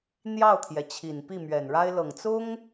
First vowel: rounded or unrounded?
unrounded